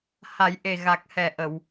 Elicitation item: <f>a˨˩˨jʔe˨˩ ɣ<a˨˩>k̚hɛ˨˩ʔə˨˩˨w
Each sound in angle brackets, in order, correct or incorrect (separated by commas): incorrect, correct